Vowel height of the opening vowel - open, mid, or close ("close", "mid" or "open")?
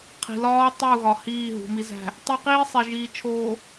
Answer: close